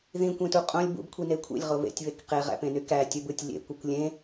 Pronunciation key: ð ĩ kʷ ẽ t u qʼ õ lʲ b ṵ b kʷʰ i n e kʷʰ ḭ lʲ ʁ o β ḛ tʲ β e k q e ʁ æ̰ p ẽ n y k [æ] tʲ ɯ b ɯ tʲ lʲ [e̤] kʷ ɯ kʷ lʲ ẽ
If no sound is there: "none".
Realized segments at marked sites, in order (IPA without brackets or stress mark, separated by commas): æ, ḛ